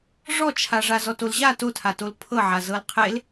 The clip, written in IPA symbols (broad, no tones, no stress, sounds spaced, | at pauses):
ʐ ɔ t͡ʃʰ a ʐ a z ɔ t o l ʑ a t o tʰ a t o l pʰ ɤ ʕ a z ɤ l qʰ e l